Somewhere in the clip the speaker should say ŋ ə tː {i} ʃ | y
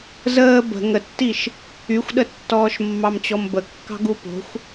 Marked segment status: correct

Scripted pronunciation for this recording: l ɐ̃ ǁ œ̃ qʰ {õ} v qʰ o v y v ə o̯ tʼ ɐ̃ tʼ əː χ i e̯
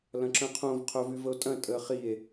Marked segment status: correct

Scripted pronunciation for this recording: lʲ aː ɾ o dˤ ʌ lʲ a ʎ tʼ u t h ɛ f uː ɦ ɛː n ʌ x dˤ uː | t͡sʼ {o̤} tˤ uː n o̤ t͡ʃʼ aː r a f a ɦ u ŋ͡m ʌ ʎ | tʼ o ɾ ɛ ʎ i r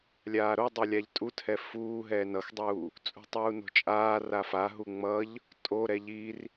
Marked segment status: incorrect: ṳ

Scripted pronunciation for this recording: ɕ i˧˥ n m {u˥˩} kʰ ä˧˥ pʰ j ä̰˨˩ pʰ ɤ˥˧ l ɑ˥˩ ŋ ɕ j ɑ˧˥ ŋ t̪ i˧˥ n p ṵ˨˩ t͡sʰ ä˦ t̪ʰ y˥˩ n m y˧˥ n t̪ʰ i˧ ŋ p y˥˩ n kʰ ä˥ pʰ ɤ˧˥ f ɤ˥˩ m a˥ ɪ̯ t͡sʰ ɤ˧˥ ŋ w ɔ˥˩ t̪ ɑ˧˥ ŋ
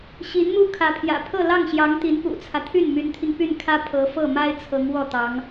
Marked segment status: incorrect: u˥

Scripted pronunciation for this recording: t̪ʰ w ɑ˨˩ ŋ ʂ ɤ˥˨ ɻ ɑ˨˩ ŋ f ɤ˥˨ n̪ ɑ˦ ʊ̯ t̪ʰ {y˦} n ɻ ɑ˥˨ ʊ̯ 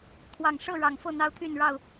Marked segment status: incorrect: y˥˨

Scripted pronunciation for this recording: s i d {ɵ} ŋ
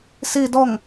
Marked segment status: incorrect: ɔ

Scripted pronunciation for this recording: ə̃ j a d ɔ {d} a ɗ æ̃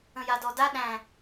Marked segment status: correct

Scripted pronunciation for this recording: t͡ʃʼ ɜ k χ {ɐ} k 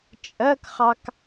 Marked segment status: incorrect: ɑ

